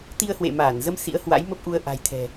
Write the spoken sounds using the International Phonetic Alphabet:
t̪i˧ə̯hwḛ˧˨maː˧˩nzə˧m sḭ˧˥ə̯hwa̰˧˥jmə˦˥p̚ ʔu˧ə̯ ʔa̤˨˩jt̪ʰɛ̤˨˩

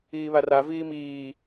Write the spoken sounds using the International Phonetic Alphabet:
iːβara viːmiː

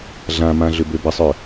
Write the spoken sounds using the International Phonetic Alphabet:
ɮãmã ɮʏbøbəsˤœ

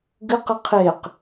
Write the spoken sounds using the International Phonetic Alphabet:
ɡɨqɨ qʰeq

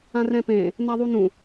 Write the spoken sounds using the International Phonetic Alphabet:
ãrɛ̃pẽ | naðˤunũ

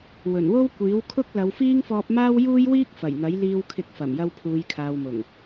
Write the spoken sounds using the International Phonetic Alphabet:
wɵ˨˩nwo˥w kʷiː˨˥wkʰʊ˥k̚ lɐ˨˧wfiː˥ŋfɔː˧p̚maː˥w juː˥jwiː˥k̚ fɐ˨˩jn̪ɐ˨˥jliː˧w kʰɪ˧k̚fɐ˨˩mjɐ˧w pʰuː˨˧jkʰaː˨wmʊ˨˩ŋ

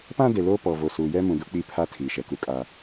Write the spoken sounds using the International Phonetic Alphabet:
pã˦de˨ loː˦pɔ˨ vo˨suː˨jɛ˦ mũ˨du˦k͡pi˦˨ pʰa˦tʰiː˨ʃɛ˨ ku˦kʼa˦

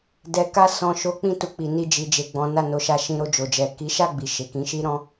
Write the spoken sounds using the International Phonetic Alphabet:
dɛ˨ka˧sɔ̃˨ ʃo˨˦k͡pĩ˧tu˨ k͡pi˨ni˧ d͡ʒi˨d͡ʒe˨ ɡ͡bɔ̃˨˦na˦˨no˨˦ʃa˧ ʃĩ˧ɾo˧ d͡ʒo˨d͡ʒɛ˨ ki˨˦ʃa˦˨ɡ͡bi˨ ʃe˨kĩ˨˦ʃi˦ ɾɔ̃˦

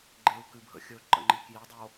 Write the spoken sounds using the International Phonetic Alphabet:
ɡ͡ǃeu̯kɨbʱə̰xʲɵ ǃə̰ŋ͡ǃikjidˤo

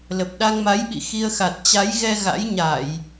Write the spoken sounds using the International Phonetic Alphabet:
lə˨˩p̚ɗa˧ŋma˨˦jɓḭ˧˨ xi˧ə̯xa˨˩t̚ t͡ɕa˨˦jɣɛ˧ ɣa̰˧˥jɲa˧˩˨j

